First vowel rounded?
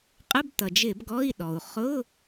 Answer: no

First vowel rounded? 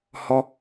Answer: yes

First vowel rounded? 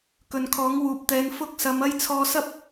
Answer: yes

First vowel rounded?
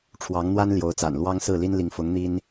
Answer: no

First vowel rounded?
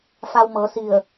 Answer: no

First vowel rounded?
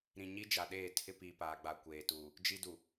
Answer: no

